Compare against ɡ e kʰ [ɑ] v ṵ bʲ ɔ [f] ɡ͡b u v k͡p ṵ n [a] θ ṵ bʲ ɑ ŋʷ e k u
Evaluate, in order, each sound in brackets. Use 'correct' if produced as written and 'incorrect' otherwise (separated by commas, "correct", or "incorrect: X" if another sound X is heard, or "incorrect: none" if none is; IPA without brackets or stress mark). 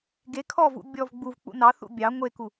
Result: incorrect: ɔ, incorrect: v, incorrect: ɑ